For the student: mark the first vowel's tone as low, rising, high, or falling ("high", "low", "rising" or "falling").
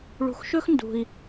low